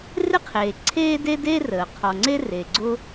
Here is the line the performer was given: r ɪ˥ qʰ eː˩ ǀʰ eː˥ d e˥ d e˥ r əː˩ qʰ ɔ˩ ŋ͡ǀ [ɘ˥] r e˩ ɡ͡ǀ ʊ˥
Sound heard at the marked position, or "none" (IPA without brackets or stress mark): e˥